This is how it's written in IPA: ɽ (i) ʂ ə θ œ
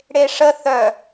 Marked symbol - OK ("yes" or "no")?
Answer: no